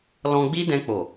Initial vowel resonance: nasal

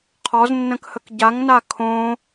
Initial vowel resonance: oral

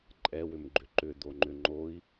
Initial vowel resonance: oral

